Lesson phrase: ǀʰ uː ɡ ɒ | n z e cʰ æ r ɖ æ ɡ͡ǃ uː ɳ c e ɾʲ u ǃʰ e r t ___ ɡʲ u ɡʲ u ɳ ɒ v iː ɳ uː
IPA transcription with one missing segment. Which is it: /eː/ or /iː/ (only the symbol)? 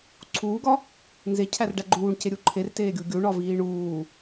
eː